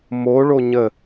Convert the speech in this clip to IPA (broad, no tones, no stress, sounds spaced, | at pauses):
m o ɭ o ɲ ə